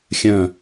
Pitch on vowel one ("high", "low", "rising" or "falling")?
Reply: low